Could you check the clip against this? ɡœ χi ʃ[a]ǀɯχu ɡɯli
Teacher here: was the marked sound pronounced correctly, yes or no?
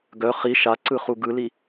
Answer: yes